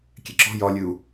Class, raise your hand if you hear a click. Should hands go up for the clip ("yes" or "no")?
yes